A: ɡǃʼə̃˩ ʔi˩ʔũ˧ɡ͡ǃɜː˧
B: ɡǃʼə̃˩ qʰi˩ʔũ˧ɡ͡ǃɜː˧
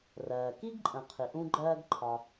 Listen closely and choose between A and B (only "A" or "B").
B